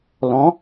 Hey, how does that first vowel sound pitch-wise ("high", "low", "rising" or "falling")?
rising